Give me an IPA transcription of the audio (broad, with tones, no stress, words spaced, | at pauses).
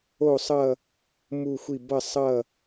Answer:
o˥˧sˤʌ˥˧ | mu˥˧xʷi˥˧ bʌ˥˧sˤʌ˥˧